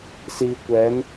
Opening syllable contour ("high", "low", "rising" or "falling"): low